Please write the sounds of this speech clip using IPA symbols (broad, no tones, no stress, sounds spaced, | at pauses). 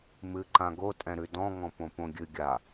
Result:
m ɨ ǃ ã ɡ o tʼ ɛ̃ ɾ ʉ d ɔ̃ ŋ ɔ̃ p õ p õ ɡʲ ɨ ɡʲ a